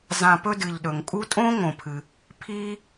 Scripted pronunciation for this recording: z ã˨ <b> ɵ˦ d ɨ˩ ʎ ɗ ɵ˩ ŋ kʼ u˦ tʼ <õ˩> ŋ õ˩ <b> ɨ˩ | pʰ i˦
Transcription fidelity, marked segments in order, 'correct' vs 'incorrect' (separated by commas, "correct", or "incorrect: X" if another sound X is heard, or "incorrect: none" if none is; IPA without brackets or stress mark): incorrect: p, incorrect: õ˥, incorrect: pʰ